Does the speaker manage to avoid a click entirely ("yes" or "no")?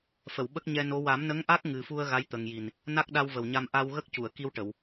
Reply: yes